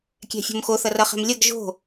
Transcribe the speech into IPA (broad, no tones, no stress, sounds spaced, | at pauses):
kʲ ɛ̤ fʲ o̤ m x o θ ʌ r ʌ χ ɛ̤ m lʲ ʌ ɡ ʒ o̤